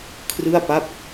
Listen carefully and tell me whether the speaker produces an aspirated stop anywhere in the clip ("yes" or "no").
yes